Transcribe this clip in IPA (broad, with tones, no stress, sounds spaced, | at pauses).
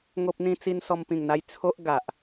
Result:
ŋ o˦ p̚ n̪ ĩ˦ t͡s i˦ n s ɔ˧ m p ĩ˨˩ ŋ n̪ a˧ j t͡sʰ o˦ ʔ ɡ a˨ ʔ